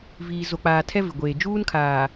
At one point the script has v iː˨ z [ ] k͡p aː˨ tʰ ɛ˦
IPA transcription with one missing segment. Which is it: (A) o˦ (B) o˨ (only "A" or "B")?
B